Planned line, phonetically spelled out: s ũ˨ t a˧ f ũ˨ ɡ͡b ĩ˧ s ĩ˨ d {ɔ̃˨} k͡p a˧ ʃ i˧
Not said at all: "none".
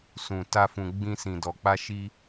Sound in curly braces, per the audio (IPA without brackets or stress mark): ɔ˨